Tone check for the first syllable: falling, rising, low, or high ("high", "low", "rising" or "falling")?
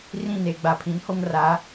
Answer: falling